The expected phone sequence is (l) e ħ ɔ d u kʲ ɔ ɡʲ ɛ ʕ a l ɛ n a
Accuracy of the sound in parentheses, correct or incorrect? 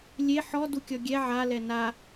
incorrect